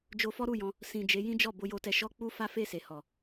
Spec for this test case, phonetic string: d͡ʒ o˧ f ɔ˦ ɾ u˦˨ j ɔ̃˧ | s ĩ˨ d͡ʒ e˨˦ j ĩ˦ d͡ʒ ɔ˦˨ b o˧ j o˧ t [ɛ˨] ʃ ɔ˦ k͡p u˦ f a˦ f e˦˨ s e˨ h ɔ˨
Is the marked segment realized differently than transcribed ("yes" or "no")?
yes